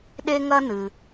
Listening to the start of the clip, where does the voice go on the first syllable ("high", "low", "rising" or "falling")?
high